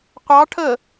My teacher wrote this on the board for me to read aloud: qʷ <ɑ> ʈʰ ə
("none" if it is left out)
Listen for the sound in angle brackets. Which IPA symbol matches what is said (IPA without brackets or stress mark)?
ɑ